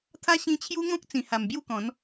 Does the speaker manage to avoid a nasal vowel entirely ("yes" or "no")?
no